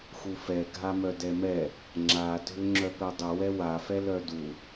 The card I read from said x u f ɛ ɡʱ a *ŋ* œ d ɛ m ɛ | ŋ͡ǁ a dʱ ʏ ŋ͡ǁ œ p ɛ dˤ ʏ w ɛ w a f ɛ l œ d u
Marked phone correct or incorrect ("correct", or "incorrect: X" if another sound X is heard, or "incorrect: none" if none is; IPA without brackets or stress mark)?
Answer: incorrect: m